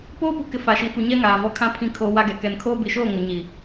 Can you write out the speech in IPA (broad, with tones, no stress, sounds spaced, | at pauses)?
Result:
p oː˦ p u˨ k ɪ˨ f a˨ ʃ i˨ f u˨ ɲ ɛ˦ ŋ aː˨ v ɔ˦ kʰ ã˦˨ pʰ ĩ˦ kʰ oː˦ w a˦ ɡ ɛ˨ k ɛ˨ n kʰ oː˦ b i˨ ʃ oː˦˨ ŋ ʊ˨ ɲ i˨